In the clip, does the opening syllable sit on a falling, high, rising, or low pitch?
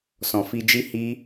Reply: low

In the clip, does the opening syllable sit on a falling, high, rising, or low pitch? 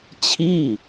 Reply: falling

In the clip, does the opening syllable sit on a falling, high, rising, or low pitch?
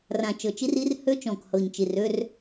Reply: low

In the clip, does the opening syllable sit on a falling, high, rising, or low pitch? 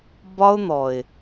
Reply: high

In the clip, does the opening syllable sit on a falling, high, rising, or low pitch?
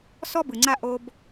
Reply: high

